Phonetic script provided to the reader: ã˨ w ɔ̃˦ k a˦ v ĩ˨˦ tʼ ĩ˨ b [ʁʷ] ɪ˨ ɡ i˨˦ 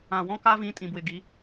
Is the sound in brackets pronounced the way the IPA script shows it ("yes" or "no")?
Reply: no